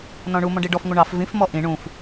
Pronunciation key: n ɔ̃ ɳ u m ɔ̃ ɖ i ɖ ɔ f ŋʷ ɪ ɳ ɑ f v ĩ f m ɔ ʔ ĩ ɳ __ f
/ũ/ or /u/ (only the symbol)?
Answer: ũ